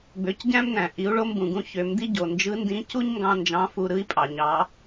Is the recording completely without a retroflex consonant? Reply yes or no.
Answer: no